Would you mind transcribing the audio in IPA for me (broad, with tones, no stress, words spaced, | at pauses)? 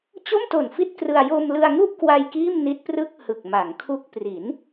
t͡ɕo˥˩mto˨˩n fi˥˩t̚krɯ˧a̯ jo˧mlɯ˧a̯ŋu˥˩ʔkwa˧j kiː˥˩mni˦˥t̚ prɯ˥˩k̚ hɯ˨˩k̚ma˩˦ŋkʰu˦˥k̚ pri˩˦n